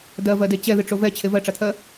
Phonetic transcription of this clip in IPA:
d ɜ v ɜ d e t͡ɕ ɛ ð ɨ ʈ͡ʂ o v ɛ t͡ɕʰ e v ɜ ʈ͡ʂ a t̪ʰ ɜ

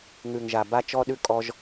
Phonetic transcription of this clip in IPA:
ŋ ʉ˨ ŋ ʒ a˨ b a˦ t͡ʃ ɔ˦ ɗ ʉ˧ kʼ ɔ˧ ʒ

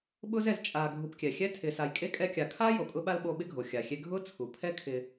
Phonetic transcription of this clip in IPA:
ɓ ʊː˥ z ɛ˨ z t͡ʃʼ aː˨ ɡʱ u˨ p kʲ ɛ˩ xʲ ɛ˦ tʰ ɪː˨ s a˨ j kʼ e˥ kʼ ɛ˦ kʲ a˨ kʰ aː˥ j o˩ kʼ ʊ˦ ɓ a˥ l ɓ o˦ ɓ ɪ˥ ɡʱ o˩ xʲ a˩ xʲ e˦ ɡʱ ʊː˥ t͡sʰ u˩ pʰ ɛ˦ kʰ ɪ˨

